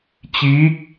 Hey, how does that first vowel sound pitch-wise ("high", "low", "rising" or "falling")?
rising